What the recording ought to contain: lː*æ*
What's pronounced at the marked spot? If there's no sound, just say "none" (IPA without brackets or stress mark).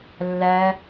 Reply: æ